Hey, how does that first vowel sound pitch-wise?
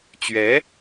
rising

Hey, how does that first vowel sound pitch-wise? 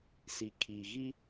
low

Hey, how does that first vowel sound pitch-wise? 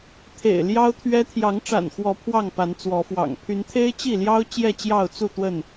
low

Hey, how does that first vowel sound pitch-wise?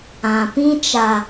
low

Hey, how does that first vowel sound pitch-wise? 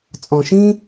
low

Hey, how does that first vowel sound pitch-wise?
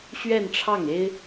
falling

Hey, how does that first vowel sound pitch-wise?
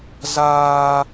high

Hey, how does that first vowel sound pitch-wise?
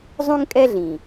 high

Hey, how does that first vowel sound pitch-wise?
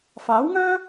rising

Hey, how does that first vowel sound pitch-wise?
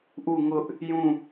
falling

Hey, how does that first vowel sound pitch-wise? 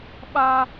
high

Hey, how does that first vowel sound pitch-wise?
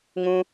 high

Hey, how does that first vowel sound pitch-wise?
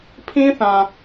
high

